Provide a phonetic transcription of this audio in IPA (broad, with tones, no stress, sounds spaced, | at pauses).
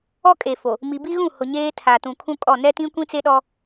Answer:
ɔ˦ kʼ e˨ f o˨ | m i˨ b i˦ ɣ ũ˦˨ h ʊ˨ ɲ eː˦ tʰ a˨ t ũ˨ kʰ ũ˦ kʼ ɔ˦˨ n ɛ˦ t ĩ˦ kʷ ĩ˦ t͡s e˦ ɗ ɔ˦